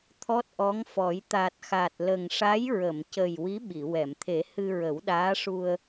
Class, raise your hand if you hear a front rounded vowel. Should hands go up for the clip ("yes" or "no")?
no